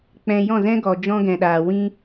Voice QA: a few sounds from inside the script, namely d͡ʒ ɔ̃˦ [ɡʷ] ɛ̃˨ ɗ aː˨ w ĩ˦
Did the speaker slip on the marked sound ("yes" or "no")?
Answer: yes